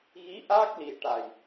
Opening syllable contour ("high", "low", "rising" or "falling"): rising